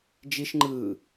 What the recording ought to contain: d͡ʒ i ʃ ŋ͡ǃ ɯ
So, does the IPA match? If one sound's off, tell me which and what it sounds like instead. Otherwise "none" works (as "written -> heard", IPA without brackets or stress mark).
none